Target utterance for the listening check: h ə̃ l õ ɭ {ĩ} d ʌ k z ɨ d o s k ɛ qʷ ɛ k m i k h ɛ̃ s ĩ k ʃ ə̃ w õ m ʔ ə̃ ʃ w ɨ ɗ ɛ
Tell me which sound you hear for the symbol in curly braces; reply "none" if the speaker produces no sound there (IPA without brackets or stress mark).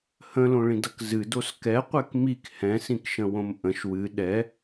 ĩ